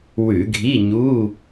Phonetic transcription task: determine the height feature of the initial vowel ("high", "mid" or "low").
high